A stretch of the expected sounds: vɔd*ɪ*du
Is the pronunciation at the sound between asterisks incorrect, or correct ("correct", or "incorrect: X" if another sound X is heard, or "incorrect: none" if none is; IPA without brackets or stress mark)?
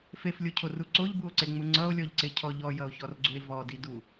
incorrect: i